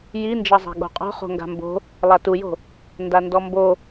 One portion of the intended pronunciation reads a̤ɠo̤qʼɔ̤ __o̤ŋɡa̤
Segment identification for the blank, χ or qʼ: χ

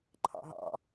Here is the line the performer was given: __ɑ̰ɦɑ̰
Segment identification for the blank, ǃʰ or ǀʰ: ǃʰ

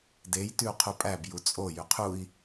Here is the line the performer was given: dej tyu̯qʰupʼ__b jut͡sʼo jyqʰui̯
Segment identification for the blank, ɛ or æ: æ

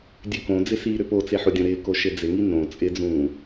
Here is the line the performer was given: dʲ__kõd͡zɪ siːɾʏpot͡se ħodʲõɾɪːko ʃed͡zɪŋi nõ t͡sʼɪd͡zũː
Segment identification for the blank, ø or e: ø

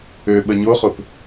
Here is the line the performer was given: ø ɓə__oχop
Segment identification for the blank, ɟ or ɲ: ɲ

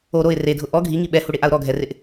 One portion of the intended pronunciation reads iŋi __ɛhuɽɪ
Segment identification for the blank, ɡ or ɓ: ɓ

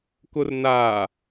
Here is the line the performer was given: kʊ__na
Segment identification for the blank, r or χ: r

